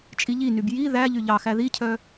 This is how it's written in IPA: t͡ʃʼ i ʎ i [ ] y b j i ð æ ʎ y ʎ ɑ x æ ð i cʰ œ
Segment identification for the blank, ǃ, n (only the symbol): n